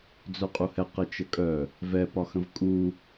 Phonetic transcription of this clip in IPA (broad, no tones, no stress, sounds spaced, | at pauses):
d͡z œ qʼ u h ɛ q ə t͡ʃ ə kʼ œ | v ɛ p ɒ x ə̃ v kʼ u